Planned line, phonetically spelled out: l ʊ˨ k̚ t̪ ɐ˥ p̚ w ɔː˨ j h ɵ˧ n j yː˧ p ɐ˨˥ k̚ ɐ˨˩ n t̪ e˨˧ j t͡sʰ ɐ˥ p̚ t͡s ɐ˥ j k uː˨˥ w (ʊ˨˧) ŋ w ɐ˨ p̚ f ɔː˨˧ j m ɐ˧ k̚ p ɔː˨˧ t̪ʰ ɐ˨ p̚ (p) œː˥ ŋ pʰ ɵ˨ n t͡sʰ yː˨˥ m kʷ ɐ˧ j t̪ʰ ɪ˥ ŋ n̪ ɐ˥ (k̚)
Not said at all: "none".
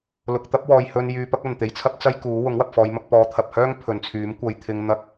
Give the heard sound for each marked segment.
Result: ʊ˨˥, h, k̚

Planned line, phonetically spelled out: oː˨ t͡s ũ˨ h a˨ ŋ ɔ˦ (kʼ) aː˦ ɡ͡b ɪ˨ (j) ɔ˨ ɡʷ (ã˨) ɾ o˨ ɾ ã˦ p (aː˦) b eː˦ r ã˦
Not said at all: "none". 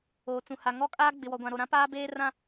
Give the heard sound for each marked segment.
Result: kʼ, w, ã˨, aː˦

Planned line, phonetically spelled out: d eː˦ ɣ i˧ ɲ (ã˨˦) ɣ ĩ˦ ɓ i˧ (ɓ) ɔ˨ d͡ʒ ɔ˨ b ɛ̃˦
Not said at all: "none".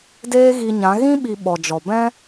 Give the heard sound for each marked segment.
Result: ã˨˦, ɓ

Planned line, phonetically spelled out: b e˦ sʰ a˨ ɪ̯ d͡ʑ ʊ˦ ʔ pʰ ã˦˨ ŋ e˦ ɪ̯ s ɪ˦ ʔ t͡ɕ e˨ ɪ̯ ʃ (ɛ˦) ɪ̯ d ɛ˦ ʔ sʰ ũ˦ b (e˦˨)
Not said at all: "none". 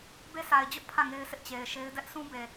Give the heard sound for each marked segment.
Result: e˦, e˨

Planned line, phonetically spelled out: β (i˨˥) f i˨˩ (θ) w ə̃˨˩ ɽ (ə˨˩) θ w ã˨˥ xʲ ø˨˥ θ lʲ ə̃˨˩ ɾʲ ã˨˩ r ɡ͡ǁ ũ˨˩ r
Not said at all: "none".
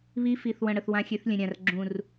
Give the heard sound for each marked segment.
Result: i˨˥, θ, ə˨˩

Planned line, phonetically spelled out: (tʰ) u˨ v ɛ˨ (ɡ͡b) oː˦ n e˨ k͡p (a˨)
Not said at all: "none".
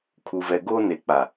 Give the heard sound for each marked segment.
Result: kʰ, ɡ, a˨

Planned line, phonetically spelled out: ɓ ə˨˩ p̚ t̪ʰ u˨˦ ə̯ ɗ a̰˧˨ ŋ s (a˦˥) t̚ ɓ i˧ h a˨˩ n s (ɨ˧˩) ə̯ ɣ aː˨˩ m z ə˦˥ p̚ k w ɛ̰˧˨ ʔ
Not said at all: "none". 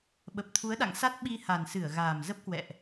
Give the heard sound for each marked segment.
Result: a˦˥, ɨ˧˩

